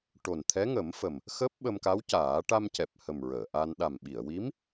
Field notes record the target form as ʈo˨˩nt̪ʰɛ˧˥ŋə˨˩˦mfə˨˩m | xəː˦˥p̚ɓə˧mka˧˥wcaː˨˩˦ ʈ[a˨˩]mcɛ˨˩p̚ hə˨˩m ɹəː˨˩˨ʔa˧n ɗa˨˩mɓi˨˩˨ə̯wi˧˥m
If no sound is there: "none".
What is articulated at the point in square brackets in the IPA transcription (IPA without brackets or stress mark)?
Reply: a˧